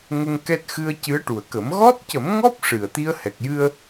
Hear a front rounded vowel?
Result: no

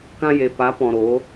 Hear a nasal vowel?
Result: yes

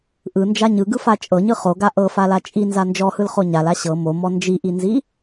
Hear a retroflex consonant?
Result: no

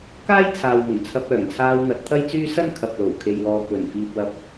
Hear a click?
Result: no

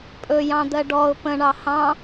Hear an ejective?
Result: yes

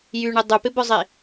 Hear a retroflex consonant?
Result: yes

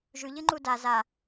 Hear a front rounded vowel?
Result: no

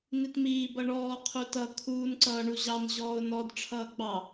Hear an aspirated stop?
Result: yes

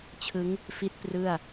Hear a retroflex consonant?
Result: no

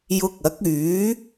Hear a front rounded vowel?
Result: yes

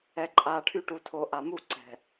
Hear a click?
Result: yes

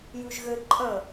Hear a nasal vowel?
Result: yes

